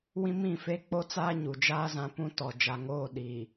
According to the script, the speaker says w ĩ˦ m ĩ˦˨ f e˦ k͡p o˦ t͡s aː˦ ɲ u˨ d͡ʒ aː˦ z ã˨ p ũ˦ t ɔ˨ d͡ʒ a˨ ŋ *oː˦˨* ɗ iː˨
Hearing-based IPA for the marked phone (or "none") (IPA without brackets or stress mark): oː˦˨